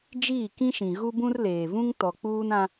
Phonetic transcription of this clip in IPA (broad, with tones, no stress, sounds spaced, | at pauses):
d͡ʒ iː˦˨ k ĩ˦ ʃ ĩ˨ ɣ u˦ b ũ˦ r l eː˨ v ũ˦ ŋ t ɔ˨ k͡p uː˦ n ã˦